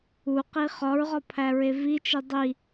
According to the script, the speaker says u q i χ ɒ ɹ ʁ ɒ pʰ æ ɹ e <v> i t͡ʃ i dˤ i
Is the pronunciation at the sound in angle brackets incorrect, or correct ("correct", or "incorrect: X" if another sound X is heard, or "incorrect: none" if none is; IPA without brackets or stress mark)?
correct